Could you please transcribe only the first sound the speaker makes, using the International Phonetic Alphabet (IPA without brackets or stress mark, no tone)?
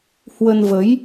h